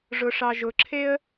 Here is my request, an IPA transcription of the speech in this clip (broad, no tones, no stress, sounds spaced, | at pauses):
ʐ ʊ ʂ ɑ ʒ ʊ ǁʰ e ə̯